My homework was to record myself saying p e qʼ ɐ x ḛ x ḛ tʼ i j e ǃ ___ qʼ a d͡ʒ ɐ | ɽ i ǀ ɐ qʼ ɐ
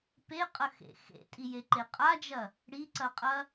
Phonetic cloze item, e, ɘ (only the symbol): e